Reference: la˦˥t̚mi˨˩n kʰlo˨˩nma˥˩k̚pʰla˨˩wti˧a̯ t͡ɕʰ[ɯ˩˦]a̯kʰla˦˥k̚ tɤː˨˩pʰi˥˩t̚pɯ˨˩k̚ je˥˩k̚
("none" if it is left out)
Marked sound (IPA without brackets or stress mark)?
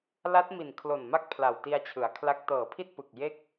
ɯ˩˦